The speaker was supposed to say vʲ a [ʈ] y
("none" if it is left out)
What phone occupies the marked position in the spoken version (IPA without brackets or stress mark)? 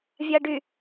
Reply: ɖ